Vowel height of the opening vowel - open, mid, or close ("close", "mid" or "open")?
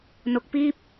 mid